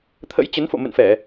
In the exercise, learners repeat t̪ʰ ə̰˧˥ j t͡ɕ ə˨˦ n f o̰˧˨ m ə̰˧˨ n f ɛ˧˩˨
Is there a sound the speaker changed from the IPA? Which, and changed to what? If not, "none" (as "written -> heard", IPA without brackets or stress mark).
none